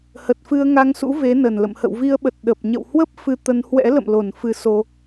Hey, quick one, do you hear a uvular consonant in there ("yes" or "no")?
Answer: no